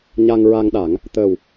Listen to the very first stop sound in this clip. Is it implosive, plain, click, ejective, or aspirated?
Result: implosive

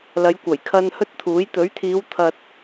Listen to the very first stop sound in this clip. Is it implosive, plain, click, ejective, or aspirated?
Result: plain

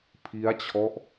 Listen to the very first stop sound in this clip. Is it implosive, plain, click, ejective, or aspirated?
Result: aspirated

